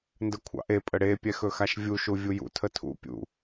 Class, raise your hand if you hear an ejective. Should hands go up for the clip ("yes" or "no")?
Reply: yes